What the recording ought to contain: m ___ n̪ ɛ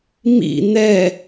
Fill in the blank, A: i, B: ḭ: B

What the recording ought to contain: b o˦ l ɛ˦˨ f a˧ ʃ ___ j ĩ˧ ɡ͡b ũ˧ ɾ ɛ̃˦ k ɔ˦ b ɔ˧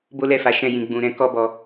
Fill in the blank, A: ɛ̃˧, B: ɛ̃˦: B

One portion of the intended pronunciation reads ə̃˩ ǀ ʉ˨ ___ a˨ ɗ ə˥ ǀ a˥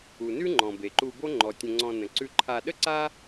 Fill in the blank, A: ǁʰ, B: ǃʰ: B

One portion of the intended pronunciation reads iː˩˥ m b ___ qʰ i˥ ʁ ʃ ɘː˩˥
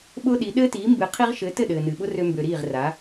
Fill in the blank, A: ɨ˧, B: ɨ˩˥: B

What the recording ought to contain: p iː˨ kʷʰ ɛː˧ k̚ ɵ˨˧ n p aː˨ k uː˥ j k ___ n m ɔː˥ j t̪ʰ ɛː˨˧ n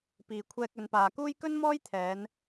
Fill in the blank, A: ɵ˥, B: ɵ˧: A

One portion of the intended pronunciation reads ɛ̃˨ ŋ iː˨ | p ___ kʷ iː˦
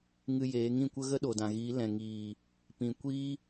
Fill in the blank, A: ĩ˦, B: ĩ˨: B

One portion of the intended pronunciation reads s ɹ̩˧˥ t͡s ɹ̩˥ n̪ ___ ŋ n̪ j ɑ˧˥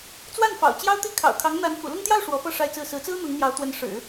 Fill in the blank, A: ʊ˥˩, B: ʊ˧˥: B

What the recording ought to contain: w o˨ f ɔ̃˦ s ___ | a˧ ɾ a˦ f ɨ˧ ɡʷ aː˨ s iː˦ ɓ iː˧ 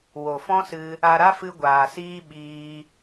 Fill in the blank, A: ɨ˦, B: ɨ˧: B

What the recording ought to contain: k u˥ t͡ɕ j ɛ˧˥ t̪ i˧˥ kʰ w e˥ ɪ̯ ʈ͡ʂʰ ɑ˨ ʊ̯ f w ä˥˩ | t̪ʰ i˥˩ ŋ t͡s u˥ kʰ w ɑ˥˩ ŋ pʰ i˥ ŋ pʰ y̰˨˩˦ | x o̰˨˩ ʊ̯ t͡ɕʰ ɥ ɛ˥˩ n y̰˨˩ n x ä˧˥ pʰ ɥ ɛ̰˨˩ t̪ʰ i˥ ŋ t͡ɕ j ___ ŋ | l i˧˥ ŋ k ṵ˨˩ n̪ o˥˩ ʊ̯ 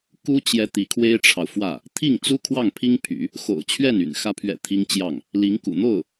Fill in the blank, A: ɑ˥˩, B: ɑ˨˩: A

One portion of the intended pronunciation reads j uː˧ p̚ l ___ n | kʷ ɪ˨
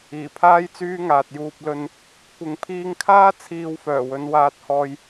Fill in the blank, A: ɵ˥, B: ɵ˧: B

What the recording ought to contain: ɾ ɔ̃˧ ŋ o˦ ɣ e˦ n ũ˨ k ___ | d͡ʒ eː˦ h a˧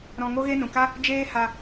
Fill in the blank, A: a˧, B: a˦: B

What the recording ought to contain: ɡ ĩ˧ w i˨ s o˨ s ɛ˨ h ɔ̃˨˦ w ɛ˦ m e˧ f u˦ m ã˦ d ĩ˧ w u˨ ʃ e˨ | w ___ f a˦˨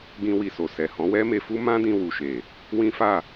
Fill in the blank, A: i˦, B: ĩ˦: B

